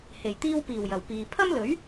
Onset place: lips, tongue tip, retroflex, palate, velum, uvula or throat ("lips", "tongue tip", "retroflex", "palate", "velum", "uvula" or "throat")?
throat